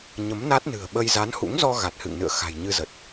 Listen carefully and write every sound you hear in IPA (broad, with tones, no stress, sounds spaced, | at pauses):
ɲ ə˨˦ m n a˦˥ t̚ n ɨ̤˨˩ ə̯ ɓ ə˧ j z a˨˦ n h ṵ˧˥ ŋ z ɔ˧ ɣ a˨˩ t̚ h ɨ̰˧˨ ŋ n ɨ̰˧˨ ə̯ x a̤˨˩ j ɲ ɨ˧ z ə˨˩ t̚